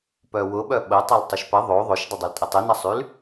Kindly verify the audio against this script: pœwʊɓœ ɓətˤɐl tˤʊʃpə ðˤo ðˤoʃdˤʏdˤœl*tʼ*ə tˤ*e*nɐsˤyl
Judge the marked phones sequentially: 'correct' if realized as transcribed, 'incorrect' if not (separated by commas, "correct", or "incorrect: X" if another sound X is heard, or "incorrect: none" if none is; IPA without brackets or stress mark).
correct, correct